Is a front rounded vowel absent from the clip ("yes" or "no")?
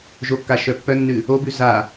no